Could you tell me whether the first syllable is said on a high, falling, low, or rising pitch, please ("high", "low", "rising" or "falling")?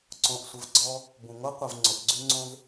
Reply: low